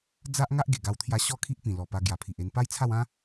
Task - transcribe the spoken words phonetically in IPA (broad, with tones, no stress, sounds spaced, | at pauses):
d͡z a˦ ʔ ŋ a˦ ʔ ɡ e˨˩ ɡ a˧ w t̪ʰ j a˧ ɕ ɔ˥˧ kʰ i˦ ʔ p ĩ˨˩ l ɔ˨˩ p a˧ ɡ j a˨˩ pʰ i˨ ʔ e˧ n p a˦ j t͡sʰ a˥˧ w ã˦